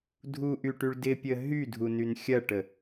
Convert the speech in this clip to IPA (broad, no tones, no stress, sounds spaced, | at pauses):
dʱ u ʔ y ʈ y ɭ d ɪ pʲ ə ɦ y dʱ u n y n xʲ ɐ ʈ ə